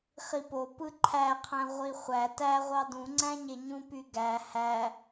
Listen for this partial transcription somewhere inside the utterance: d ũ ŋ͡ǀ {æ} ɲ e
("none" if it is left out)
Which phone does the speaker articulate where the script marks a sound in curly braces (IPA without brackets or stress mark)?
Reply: æ̃